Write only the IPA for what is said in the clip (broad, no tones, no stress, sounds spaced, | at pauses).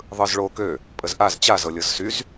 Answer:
ðˤ ɯ z ɭ o k ø | pʼ ə z ʔ a z t͡ɕ a z ɤ lʲ ɤ z s y z